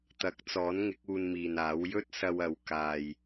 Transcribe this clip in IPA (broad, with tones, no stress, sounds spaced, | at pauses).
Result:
t̪ ɐ˨˥ k̚ t͡s ɔː˨˥ n ŋ ɪ˨˥ k̚ uː˧ n m iː˨ n aː˨˥ w j ɵ˥ t̚ s ɐ˧ w ɐ˨˧ w k aː˧ j